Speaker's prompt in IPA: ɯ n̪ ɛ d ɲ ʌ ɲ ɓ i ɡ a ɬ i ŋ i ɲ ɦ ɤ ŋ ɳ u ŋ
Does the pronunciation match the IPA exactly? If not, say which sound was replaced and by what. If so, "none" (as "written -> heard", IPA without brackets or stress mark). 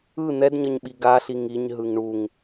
ɤ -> ɯ